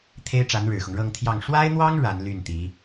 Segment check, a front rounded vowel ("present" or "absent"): present